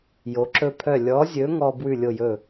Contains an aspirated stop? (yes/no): yes